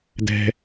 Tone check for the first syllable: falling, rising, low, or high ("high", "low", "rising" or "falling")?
high